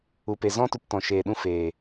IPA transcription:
u˨ p e˨ z ɔ̃˦ t u˧ p t ɔ̃˨ ʃ eː˨ ɗ ũ˧ f eː˨

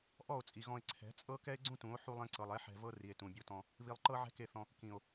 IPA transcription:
ʔ ɔ˦˨ o̯ t͡sʼ i˨ ɣ ɔ̃˧ e̯ ǀʰ ɛ̤˨˦ t͡sʼ ɤ˦ k ɛ˦ e̯ ɡ͡ǀ ũ˦ t ũ˨˦ o̯ ħ u˧ lˠ ɛ̃˧ ǀ ɤ˨ lˠ ɛ˨˦ ħ ɛ̤˧ v ɤ˦ r i˨ e̯ t ũ˨ bʲ ɤ˧ t ɔ̃˧ | β i˨ lˠ ǃ ɤ˧ ʕ ɛ̤˧ k e˧ θ ɔ̃˧ | k ĩ˨ o̯

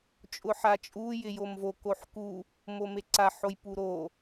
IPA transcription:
t͡ʃʼ ʊ ħ a t͡ʃʼ u j ɪ j o m v o k o ħ k u | m o m e ǀ a ħ o j p u ɾ o

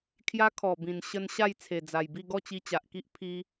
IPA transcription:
kʰ j a˦ kʰ ɔ˨˩ b ĩ˨˩ n ɕ ə˧ n ɕ a˥˧ j t͡sʰ e˨˩ d͡z a˨˩ j b i˥˧ ɡ ɔ˥˧ t͡ɕ i˧ t͡ɕ a˨ ʔ k i˦ ʔ pʰ i˧

